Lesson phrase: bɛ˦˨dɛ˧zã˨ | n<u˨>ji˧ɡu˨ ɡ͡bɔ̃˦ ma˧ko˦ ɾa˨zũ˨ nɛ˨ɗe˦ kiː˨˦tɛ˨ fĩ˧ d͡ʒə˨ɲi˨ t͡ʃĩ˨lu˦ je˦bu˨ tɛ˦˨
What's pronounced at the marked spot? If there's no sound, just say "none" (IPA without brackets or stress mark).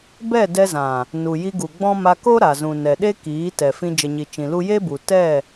u˨